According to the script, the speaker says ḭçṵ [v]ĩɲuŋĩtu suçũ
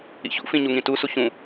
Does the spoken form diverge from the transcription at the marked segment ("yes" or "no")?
yes